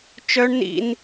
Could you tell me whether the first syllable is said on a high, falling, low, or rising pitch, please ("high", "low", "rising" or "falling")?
high